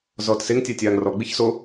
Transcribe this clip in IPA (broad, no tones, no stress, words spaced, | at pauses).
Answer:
zɔːtseŋ tʲatʲaːŋrɔ ɡ͡biçso